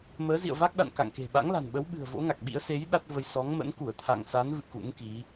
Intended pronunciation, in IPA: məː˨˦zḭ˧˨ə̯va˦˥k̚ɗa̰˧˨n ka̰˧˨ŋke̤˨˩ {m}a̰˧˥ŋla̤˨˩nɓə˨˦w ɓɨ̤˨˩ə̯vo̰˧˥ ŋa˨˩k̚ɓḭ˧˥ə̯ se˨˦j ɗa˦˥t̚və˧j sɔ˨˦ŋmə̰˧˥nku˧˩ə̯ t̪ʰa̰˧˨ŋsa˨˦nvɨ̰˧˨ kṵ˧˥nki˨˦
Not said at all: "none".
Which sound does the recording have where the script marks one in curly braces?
ɓ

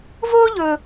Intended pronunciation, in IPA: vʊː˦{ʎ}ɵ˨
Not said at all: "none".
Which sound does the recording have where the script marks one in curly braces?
ʎ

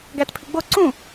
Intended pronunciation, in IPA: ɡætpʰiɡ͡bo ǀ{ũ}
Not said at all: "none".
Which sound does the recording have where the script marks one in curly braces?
ũ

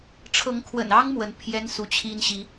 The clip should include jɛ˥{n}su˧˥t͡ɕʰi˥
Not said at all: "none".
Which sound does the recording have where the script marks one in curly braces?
n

